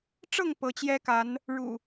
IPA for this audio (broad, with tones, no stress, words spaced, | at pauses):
ʈ͡ʂɤ˥˨ŋ pɤ˨˦t͡ɕjɛ˦ka˨˦n | ɻṵ˨˩